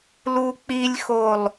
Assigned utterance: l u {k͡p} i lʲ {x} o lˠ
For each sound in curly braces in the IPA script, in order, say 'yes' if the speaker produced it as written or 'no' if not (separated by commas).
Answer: yes, yes